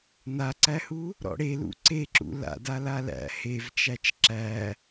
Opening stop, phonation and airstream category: click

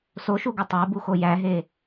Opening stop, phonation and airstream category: plain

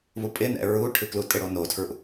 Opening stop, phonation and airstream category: ejective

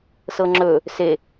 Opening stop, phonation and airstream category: click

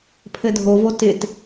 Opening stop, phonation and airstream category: aspirated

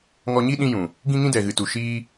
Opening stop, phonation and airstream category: implosive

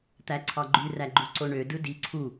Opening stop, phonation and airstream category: plain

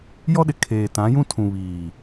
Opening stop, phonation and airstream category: implosive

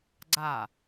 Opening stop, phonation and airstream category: click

